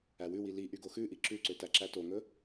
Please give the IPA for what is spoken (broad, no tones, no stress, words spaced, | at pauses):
æwʉwi liʔy ɡoxʉʔi ǁʉǀø tæǁætoŋɵ